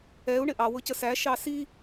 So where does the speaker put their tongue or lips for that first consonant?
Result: retroflex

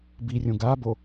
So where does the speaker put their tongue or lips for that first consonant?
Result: lips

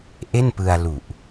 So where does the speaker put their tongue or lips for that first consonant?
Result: throat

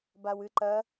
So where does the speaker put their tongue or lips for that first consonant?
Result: lips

